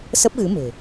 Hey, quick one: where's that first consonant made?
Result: tongue tip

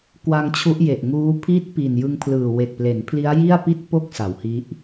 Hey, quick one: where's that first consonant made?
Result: velum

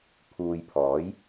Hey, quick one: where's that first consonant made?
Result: lips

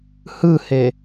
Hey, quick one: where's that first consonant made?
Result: throat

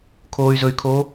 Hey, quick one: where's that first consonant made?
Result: velum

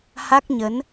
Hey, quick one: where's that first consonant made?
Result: throat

